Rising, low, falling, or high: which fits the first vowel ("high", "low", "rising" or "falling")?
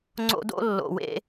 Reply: high